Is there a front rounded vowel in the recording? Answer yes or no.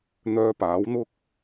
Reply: yes